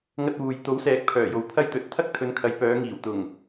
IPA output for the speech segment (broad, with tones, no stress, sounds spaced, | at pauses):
ŋ ɐ˧ t̚ w uː˨ j t̪ o˨˥ w s ɛː˨˥ k̚ pʰ œː˨˩ j o˨ w pʰ ɐ˥ j t̪ ɵ˨˥ t̚ t̪ʰ ɐ˥ k̚ t̪ʰ ɵ˨˧ n kʰ ɐ˨˧ j p œː˨˧ ŋ iː˨˩ w t̪ ʊ˨˩ ŋ